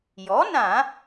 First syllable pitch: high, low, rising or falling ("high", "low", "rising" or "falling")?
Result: rising